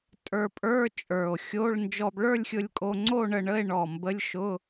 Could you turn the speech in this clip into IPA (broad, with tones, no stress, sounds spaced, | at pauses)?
tʼ ə˞˧ pʼ ə˞˧˥˧ t͡ʃʼ ə˞˨˩ o̯ xʲ o˧˥˧ ɭ n d͡ʒ ɔ˧ b ɭ ə˞˥˧ lʲ xʲ ʊ˧ lʲ kʼ o˧ ŋ͡ǀ o˥˧ ɳ ə˧ ɳ ə˧˥˧ e̯ ɳ ɔ˨˩ m b ə˧˥˧ lʲ ʃ ʊ˧˥˧